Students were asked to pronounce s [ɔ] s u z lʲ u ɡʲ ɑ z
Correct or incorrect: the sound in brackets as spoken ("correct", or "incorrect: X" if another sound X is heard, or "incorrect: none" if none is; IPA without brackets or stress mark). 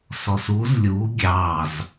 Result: correct